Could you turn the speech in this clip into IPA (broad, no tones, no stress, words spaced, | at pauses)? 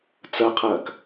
t͡sɐqʰɐːk